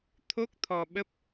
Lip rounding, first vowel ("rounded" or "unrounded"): rounded